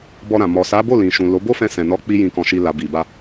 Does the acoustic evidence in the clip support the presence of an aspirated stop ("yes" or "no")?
no